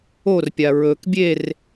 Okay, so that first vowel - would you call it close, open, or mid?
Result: mid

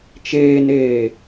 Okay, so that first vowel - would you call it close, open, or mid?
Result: mid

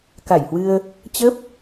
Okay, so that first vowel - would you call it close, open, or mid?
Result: open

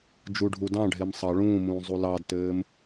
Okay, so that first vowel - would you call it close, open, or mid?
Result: close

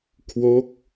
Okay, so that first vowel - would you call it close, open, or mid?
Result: mid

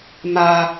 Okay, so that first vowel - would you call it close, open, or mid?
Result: open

